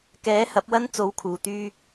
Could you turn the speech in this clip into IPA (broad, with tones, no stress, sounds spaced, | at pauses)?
k ɛː˨˥ h ɐ˨˥ p̚ w ɐ˥ n t͡s o˨˥ w kʰ uː˨˩ t̪ yː˧